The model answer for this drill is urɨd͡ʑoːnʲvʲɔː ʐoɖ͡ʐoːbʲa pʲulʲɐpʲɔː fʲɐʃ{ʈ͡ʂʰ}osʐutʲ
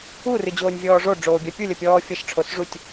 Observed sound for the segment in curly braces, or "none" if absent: ʈ͡ʂʰ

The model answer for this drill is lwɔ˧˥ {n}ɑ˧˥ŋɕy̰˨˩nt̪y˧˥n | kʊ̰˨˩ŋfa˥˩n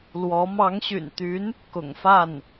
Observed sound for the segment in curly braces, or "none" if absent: m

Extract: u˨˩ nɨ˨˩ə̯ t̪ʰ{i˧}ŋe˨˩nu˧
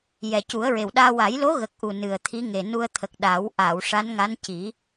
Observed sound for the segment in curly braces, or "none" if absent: i˧˥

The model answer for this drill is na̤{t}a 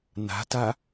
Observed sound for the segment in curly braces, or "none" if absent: t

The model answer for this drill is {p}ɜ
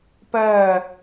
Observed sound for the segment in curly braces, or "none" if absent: p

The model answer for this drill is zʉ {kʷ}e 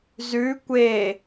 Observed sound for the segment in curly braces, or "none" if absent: kʷ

